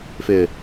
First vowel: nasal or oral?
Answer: oral